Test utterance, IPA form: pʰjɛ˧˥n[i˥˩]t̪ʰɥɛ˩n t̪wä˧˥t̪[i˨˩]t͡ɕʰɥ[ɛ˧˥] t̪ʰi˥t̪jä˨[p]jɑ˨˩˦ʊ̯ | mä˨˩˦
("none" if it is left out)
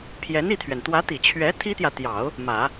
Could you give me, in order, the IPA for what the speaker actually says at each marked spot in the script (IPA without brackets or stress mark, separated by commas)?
i˥˩, i˨˩, ɛ˧˥, t̪